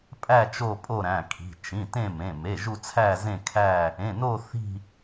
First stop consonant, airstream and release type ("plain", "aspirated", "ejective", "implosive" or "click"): ejective